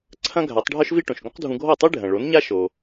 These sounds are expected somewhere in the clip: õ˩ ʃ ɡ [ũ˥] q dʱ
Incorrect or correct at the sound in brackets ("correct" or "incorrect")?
incorrect